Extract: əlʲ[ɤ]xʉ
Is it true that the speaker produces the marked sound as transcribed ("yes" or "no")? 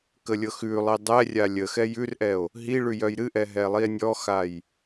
yes